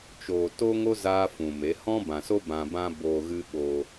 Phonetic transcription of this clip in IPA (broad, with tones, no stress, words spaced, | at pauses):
t͡ʃoː˨to˦ŋo˦ zaː˦fũ˨me˨˦ hɔ̃˦bã˨so˦ bã˧bã˦boː˧ ɣɨ˦ɓo˧